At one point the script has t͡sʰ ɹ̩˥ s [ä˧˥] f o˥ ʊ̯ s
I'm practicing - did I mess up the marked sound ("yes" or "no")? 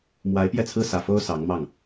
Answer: yes